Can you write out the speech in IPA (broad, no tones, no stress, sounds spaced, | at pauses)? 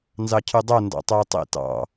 n z ɑ cʰ y dˤ o n d ɑ̰ tˤ e j tˤ ḭ t ɑ̰